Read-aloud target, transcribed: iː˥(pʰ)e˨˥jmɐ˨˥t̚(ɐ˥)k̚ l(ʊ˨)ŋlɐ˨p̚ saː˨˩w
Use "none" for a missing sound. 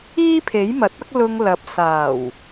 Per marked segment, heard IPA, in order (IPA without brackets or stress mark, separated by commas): pʰ, ɐ˥, ʊ˧